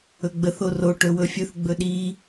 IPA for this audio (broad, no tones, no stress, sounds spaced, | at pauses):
ɵ ɡ͡b ə θ o r o ʈ ɵ w ɵ fʲ ɵ θ ɡ͡b ɵ ɗ i